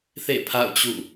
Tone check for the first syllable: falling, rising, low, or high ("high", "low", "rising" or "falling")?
falling